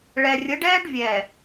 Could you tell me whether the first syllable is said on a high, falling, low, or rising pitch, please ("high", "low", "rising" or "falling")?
low